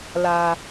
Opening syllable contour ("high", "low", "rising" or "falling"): low